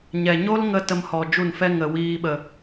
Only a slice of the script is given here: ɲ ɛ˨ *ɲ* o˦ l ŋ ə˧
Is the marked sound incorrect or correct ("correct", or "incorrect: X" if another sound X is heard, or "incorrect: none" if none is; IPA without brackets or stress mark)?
correct